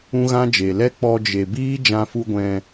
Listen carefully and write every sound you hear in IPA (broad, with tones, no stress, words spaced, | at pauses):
ũ˦ɣã˦d͡ʒe˨ lɛ˦k͡pɔ˧ d͡ʒe˨ biː˦ d͡ʒã˧ fu˧ɡʷɛ̃˧